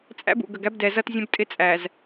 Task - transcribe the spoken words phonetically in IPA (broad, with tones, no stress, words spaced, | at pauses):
t͡sʼæ̰˦bṵ˨ɡə˨ɡæ˦b dɛ˨zʌ˦tzʲə̃˦b tʼɪ˦t͡sʼæ˨z